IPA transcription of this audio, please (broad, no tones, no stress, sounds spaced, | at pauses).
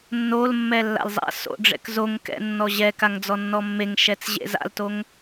nː o l mː ɛ lː a̰ l zˤ a̰ s o̰ ɖ͡ʐ ɛ̰ k z o ŋ k ɛ̰ nː ɔ ʑ ɛ k a ŋ d͡z ɔ nː ɔ mː e ŋ ʃ ɛ t͡s ʑ ḛ z a̰ l t o ŋ